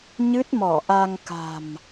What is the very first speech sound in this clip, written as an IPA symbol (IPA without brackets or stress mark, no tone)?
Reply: ɲ